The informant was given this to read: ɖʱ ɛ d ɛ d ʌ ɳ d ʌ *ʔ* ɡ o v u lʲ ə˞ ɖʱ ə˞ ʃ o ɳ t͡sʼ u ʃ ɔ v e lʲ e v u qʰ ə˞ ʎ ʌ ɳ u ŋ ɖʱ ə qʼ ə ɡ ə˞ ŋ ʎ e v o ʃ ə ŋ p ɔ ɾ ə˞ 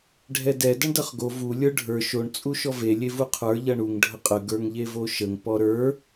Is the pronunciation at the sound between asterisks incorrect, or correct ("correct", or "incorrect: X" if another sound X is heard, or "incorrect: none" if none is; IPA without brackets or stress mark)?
incorrect: χ